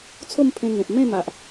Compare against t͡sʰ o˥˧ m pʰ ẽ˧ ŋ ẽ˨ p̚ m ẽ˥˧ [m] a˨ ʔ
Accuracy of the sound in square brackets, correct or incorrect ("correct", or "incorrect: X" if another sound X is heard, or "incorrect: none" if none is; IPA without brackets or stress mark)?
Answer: correct